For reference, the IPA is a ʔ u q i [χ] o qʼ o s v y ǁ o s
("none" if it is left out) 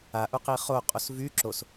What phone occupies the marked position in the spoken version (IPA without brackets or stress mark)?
χ